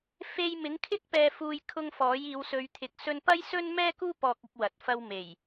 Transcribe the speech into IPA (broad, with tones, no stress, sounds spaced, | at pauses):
f e˧ j m ɪ˨˥ ŋ kʰ ɪ˥ k̚ p ɛː˧ f uː˧ j kʰ ʊ˧ ŋ f ɔː˨˥ j iː˨˧ w s ɵ˨˧ ɥ t̪ʰ ɪ˨ k̚ s ɵ˧ n p ɐ˥ j s ɵ˥ n m ɛː˥ k uː˥ p ɔː˧ k̚ ɪ˧ k̚ w ɐ˨ t̚ f ɐ˧ w m e˨˩ j